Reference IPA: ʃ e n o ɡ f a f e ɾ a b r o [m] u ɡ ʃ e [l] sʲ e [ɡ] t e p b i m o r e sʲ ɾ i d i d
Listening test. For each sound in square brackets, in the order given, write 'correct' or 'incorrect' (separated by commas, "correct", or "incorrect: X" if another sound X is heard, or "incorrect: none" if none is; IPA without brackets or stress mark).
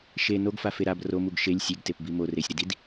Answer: correct, incorrect: lʲ, correct